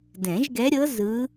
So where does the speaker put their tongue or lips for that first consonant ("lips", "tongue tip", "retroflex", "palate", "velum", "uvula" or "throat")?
tongue tip